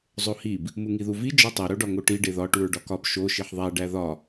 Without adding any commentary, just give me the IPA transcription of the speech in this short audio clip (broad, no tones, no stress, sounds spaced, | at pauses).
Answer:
zˤ o h i b | m u ŋ i ð u v i d͡ʒ ɒ tˤ e ɾ o ɖ ɒ ŋ o ʈ i ɖ e ð ɒ ʈ u ɹ ɖ ɒ k ɒ b ʃ o ʃ i ħ ðˤ æ ɖ æ ð ɒ